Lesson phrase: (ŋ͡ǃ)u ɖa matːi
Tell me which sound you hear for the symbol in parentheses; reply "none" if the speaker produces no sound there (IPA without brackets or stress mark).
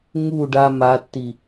ŋ